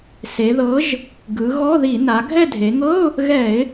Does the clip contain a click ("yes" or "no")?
no